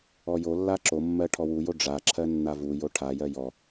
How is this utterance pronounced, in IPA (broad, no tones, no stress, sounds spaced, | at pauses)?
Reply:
ɔ j o lː a ǁ o mː ɜ ʈʰ ɔ w u j o ɖ͡ʐ a ǁʰ ɜ nː a v u j o ʈʰ a j ɜ j ɔ